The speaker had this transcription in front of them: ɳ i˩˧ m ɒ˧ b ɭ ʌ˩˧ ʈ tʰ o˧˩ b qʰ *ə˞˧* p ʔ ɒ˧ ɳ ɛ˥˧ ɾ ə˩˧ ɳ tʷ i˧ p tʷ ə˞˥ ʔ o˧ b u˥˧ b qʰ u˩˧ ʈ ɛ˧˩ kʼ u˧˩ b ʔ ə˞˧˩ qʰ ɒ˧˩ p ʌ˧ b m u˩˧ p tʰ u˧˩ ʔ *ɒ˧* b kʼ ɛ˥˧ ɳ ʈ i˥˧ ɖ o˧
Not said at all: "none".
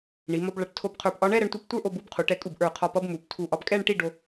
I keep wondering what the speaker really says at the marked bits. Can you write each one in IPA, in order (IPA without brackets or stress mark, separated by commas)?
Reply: ə˞˧˩, ɒ˧